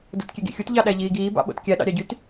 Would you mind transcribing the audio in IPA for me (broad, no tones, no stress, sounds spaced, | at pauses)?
d o̰ t kʲ e ɡ ḭ xʲ u t ʎ ɑ ɗ æ ʎ iː ɡ iː b ɑ̰ ɓ o̰ t kʲ æ ɗ ɑ̰ ɾʲ ɑ ɟ y t